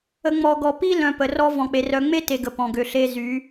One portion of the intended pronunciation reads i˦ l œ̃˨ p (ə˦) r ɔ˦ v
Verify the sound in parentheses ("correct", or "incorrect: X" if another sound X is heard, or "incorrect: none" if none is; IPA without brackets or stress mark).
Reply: incorrect: ə˨